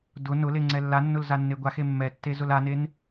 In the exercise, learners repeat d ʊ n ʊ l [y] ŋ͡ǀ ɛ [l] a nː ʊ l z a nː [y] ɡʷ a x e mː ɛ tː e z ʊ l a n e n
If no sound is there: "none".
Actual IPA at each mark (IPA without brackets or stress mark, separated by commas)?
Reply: e, lː, e